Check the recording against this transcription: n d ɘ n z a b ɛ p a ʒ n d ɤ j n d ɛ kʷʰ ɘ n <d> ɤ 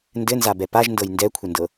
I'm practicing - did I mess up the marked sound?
no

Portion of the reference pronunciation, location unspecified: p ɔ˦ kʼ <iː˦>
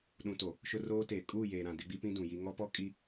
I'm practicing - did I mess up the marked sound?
yes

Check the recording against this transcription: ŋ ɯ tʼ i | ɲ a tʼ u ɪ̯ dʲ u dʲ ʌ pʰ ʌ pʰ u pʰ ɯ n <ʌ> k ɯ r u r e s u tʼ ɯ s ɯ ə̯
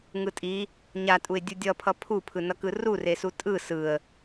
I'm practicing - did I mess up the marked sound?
no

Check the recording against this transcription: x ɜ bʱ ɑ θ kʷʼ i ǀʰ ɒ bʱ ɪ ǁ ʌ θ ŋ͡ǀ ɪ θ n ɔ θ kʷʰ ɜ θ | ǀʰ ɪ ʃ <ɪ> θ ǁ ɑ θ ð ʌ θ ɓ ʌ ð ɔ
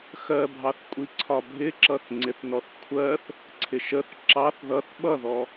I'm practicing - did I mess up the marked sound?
yes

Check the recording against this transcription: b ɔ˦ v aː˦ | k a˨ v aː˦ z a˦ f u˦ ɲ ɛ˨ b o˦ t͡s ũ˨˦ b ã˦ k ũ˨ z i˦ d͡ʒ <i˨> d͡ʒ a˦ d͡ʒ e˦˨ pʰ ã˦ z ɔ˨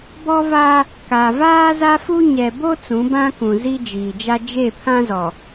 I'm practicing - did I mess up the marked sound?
yes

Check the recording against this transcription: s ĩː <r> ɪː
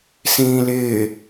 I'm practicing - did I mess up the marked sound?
yes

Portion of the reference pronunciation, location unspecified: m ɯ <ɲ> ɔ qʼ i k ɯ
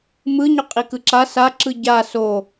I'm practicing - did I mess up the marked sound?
no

